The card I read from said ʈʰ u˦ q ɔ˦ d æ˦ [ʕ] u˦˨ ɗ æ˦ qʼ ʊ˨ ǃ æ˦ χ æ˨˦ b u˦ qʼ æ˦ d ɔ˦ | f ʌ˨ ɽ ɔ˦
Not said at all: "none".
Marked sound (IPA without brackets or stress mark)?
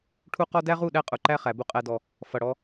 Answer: ʁ